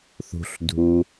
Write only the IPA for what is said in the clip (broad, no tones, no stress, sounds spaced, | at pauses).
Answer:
θ ṳ ɬ dʱ u